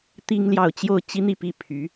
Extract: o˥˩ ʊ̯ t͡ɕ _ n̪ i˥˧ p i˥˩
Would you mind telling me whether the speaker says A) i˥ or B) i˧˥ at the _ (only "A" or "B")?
A